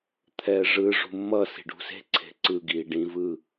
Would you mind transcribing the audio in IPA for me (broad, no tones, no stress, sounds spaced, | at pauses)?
t̪ʰ ɛː ʐ ɯ ʐ ṳ mː ʌ s i̤ ɖ ṳ s e̤ ǀʰ e̤ ǀ ɯ ɡ iː ɖ ĩ v ɯ